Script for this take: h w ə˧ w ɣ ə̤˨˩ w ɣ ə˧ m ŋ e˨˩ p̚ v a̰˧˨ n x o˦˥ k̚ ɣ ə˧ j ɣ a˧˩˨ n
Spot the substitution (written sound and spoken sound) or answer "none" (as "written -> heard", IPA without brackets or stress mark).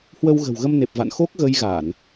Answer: ŋ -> n